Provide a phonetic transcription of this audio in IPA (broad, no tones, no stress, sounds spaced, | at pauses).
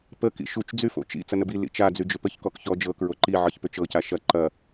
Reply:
p ə k ḭ ʃ u t͡ʃ d͡z y f o̰ t͡ʃ ḭ t͡s ɐ n ə b i l ḭ t͡ʃ a d͡z y d͡ʒ ʏ p ə ç k ɔ k ç ɔ d͡ʒ ɤ k ɹ o ǃ i ʕ ɤ ç p ʏ t͡ʃ ɤ c a ʃ ɐ ǃ ɐ